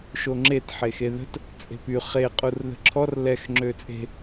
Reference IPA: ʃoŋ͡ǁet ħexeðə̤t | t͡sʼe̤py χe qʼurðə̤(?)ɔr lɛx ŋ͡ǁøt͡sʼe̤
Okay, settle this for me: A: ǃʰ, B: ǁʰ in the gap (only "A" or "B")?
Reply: B